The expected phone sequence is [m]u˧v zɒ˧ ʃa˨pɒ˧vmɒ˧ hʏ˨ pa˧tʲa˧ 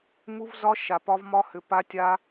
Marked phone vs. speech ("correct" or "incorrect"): correct